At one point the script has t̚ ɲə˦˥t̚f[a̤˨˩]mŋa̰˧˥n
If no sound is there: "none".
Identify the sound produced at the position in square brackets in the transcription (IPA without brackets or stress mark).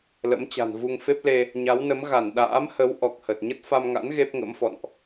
a˧